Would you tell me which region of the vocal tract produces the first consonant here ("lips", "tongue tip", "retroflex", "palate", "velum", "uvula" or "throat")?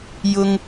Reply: palate